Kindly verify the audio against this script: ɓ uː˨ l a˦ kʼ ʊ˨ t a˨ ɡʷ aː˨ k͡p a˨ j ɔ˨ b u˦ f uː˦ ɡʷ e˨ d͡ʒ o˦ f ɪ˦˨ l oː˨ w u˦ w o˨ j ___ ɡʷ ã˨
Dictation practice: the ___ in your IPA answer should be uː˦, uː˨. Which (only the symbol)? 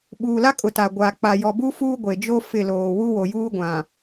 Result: uː˦